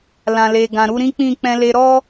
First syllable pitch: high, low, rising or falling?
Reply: low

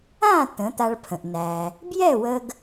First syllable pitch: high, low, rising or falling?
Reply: falling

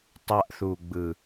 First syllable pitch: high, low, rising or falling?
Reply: high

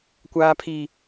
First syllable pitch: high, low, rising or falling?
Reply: high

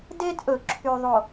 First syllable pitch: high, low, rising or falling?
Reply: high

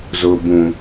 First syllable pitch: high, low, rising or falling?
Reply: low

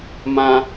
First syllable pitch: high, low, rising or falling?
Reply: high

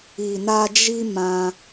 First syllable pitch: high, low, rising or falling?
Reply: low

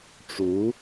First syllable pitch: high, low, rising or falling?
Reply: rising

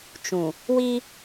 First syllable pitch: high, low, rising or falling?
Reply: low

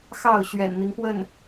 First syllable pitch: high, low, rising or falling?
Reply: falling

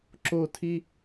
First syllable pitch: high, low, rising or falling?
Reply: falling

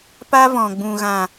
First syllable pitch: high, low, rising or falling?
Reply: high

